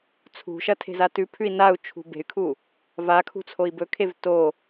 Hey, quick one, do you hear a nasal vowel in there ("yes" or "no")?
no